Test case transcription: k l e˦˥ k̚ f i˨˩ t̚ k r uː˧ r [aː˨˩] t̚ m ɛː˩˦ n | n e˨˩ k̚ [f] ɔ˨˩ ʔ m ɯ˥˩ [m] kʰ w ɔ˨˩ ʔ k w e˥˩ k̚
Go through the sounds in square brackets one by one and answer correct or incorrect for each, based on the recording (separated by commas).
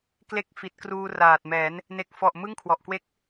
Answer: correct, correct, incorrect